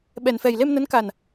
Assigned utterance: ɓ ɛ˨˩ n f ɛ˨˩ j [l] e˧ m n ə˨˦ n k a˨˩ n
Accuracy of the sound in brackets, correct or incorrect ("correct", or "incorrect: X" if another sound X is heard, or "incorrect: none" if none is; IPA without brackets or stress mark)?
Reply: correct